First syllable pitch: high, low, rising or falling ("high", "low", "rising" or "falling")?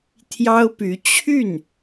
high